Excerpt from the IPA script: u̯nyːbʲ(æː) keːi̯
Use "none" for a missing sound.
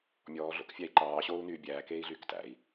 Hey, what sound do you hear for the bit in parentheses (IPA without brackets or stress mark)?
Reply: æː